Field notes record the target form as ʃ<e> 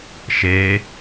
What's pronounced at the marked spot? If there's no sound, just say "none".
e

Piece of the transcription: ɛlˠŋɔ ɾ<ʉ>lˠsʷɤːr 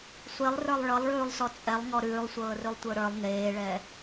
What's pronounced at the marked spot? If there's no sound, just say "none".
ʉː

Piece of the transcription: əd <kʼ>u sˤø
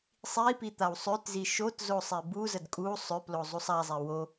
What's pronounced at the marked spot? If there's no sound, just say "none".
kʼ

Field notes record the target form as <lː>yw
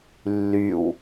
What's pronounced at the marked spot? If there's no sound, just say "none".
lː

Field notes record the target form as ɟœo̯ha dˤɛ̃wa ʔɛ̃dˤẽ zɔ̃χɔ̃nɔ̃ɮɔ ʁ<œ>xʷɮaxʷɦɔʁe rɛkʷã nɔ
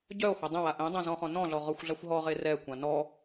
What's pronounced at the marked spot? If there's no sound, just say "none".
œ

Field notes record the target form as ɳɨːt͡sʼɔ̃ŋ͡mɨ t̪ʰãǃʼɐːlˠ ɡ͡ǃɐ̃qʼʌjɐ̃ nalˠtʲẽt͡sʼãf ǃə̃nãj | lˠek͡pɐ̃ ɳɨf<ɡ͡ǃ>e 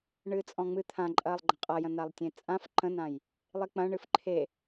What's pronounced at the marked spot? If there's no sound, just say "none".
ǃʰ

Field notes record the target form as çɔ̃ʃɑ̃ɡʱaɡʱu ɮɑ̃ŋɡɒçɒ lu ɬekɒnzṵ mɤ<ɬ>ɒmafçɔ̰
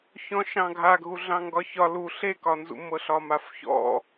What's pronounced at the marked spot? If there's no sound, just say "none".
ɬ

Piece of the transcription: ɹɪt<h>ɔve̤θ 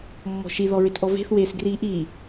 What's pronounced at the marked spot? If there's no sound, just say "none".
ʔ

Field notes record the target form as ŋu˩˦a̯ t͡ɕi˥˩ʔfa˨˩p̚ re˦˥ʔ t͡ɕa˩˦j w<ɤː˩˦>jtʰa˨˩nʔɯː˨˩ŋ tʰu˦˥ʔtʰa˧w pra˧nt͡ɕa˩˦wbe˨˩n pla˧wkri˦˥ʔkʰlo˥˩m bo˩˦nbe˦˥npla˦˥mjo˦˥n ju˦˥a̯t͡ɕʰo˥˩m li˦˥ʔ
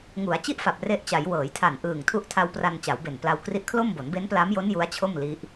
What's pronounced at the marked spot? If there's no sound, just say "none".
ɤː˩˦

